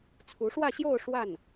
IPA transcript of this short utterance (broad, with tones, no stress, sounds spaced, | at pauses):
t͡sʰ u˧˥ ʂ w ä˥˧ ɕ j o˥˧ ʊ̯ ʂ w a˥˩ n